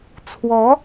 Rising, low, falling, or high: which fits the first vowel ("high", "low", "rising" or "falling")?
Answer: rising